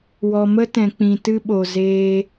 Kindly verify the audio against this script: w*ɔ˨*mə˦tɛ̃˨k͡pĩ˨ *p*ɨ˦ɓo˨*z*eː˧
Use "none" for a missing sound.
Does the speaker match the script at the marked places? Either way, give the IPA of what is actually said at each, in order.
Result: ɔ˨, t, z

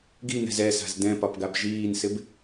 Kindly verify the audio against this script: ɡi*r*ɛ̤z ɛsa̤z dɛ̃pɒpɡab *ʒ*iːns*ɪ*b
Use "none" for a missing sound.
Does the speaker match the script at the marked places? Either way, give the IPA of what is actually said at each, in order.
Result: n, ʒ, ɪ

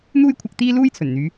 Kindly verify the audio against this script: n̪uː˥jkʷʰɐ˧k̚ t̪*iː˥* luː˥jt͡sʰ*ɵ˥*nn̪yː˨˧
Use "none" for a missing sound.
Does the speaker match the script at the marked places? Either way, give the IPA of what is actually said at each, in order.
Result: iː˥, ɵ˨˩

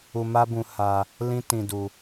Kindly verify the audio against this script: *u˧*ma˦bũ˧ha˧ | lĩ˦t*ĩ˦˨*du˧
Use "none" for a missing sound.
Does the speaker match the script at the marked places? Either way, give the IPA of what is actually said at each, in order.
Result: u˧, ĩ˧

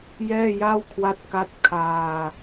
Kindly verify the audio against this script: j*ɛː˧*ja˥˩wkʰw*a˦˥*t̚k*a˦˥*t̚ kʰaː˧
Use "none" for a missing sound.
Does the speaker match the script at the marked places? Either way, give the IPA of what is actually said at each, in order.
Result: ɛː˥˩, a˦˥, a˦˥

